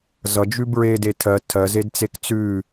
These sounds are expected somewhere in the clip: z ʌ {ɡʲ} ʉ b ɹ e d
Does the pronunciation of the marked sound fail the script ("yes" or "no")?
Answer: yes